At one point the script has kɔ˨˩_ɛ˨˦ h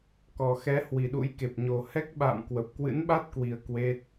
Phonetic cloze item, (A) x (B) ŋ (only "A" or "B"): A